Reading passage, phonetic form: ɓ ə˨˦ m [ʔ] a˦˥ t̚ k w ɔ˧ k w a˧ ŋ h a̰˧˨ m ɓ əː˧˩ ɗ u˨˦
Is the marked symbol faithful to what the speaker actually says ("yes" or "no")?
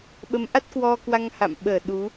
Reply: yes